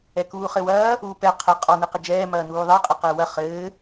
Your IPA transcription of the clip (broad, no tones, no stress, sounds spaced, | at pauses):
ɛ k uː χ ɘ w ɐː | uː p ɛ qʰ ɘ qʼ ɔ n ɨ q ɘ d͡ʒ ɛː m ɐː n uː ðˤ ɘː qʼ ɘ q ɛː w ɐ χ ɘː